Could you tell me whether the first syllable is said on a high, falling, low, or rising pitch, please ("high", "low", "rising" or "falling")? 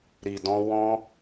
low